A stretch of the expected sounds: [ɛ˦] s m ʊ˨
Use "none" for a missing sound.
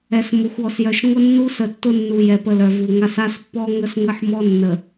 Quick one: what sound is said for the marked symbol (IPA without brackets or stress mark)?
ɛ˨